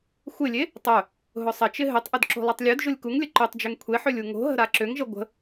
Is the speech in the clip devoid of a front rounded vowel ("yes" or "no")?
no